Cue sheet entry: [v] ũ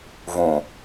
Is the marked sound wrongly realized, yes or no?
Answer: no